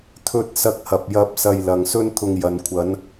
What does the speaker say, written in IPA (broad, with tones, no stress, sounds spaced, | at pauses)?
t̪ʰ ɵ˧ t̚ s ɐ˧ k̚ h ɐ˨ p̚ j ɐ˧ p̚ s ɐ˧ j l ɐ˨ ŋ s ɵ˥ n t̪ʰ ʊ˧ ŋ j ɐ˨ n kʷʰ ɐ˨˧ n